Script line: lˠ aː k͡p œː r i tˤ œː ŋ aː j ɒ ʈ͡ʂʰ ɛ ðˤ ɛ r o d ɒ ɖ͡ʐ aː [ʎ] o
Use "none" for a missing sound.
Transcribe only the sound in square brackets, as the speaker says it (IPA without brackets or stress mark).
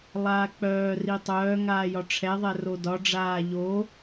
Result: ʎ